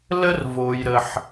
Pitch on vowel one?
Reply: high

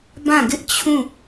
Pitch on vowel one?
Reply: falling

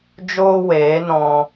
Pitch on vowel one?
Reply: high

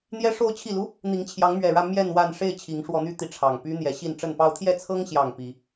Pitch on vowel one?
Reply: rising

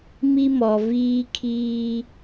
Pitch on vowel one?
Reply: high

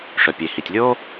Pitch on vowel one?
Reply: low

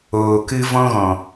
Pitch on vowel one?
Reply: low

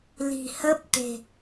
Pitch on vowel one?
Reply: low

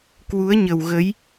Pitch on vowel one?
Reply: rising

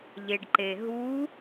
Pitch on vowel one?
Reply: low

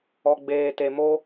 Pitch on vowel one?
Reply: low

